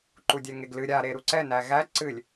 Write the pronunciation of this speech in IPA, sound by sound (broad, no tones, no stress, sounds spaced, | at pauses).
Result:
ǃ u dʲ ɛ ŋ e ɡ l ɨ ɾʲ a ɾ e ɾ u ǀ ɛ n æ ɣ æ ǀ ɨ lʲ